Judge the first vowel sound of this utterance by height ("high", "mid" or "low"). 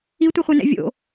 high